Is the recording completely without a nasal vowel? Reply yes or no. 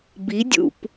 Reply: yes